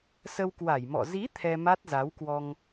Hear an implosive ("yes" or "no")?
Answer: no